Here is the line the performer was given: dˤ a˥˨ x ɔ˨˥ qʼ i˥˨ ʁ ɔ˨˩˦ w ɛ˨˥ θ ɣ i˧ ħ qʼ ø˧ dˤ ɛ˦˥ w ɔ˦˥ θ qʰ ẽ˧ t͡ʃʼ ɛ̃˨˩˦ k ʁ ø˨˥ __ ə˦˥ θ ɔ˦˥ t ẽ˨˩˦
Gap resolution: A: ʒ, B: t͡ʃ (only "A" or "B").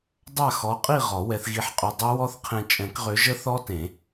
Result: A